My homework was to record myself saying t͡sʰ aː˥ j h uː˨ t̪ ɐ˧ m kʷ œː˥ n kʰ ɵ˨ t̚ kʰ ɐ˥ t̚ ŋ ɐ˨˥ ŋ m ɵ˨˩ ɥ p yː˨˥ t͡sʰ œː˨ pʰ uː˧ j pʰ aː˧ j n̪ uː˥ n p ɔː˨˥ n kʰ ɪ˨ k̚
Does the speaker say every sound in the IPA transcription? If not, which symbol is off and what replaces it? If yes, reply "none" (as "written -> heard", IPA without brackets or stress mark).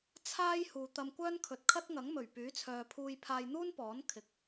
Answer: none